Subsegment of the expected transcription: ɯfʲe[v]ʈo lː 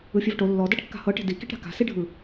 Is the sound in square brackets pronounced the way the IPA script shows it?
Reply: yes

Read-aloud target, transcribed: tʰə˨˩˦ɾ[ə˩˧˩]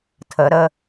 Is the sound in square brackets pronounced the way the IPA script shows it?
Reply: no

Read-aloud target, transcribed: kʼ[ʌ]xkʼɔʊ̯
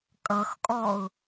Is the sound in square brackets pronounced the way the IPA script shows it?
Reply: yes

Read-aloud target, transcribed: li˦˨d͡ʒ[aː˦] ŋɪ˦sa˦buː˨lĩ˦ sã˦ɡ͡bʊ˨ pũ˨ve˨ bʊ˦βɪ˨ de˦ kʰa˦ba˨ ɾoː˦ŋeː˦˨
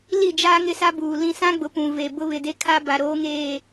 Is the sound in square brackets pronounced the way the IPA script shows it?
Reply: yes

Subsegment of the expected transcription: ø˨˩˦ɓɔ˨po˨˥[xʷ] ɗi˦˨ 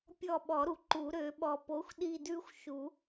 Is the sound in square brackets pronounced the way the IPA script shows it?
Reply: yes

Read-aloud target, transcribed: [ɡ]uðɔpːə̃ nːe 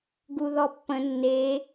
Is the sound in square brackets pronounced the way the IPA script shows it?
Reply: yes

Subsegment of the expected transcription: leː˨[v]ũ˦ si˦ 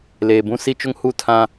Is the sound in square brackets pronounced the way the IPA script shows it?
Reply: no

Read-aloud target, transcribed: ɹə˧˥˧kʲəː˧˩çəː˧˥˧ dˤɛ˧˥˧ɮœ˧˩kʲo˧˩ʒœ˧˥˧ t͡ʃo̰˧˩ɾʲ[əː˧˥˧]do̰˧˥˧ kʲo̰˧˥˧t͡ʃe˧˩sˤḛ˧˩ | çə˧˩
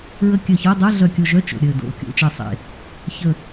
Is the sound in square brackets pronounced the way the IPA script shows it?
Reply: no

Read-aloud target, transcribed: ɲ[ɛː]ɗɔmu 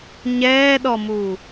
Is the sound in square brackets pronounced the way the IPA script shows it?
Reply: yes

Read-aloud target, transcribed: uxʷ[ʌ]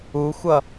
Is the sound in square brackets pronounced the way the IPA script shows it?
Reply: yes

